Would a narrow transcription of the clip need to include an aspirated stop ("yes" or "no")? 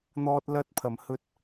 yes